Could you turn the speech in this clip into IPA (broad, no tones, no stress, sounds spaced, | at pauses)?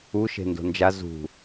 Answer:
u ʃ e̤ n d o̤ n d͡ʒ a z ṳ